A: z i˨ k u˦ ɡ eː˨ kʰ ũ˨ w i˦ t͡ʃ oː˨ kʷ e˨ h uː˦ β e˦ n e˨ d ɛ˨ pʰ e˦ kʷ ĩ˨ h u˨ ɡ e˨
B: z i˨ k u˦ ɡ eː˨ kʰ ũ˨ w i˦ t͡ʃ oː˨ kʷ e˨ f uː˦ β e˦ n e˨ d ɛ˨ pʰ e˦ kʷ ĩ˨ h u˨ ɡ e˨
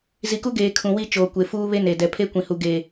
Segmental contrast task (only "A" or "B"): B